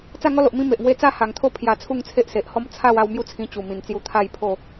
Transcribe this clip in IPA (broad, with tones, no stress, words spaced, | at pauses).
t͡sa˥˧ŋɔ˦lo˨ʔ mĩ˦ me˨ʔŋwe˦ t͡sa˥˧ha˨˩ŋt̪ʰo˦ pʰja˧t͡sʰu˥˧ŋt͡sʰe˦ʔ se˨ʔhɔ˦m t͡sʰa˥˧w a˥˧wmju˥˧t͡sʰĩ˧ t͡ɕu˨˩mĩ˨˩nt͡sju˧ t̪ʰa˥˧jpʰo˥˧